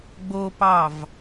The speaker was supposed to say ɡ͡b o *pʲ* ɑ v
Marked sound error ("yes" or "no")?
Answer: yes